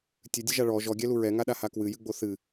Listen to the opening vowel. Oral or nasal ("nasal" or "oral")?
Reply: oral